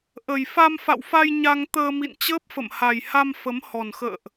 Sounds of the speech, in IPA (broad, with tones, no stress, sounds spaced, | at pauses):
ʔ ə˨˩ j f a˧ m f a̰˧˨ w f a˧ j ɲ a˧ ŋ t̪ əː˧ m ḭ˧˨ n t͡ɕ əː˦˥ p̚ f ə̰˧˨ m h a˨˩ j h a˧ m f ə˨˦ m h ɔ˨˩ n x ə̰ː˧˨ ʔ